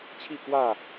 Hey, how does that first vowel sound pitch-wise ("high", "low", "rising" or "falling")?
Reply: falling